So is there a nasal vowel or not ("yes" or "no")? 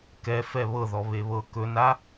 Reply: no